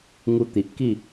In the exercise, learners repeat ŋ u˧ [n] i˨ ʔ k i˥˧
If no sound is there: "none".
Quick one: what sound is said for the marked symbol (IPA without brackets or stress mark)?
t̪